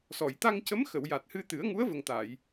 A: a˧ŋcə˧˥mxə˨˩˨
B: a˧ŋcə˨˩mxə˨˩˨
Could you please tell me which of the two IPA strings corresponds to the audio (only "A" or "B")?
A